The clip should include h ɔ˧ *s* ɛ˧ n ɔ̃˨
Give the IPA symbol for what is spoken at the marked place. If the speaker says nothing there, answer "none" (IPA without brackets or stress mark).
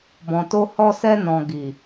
s